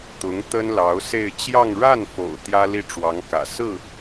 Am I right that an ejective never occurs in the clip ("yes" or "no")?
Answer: yes